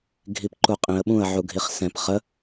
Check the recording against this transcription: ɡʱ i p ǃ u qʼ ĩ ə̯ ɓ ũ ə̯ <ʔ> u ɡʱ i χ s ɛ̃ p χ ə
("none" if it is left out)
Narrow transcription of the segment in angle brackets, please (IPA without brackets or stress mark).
ʕ